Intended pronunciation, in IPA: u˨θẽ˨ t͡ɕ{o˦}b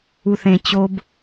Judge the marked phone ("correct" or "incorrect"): correct